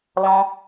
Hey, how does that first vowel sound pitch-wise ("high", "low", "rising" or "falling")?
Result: high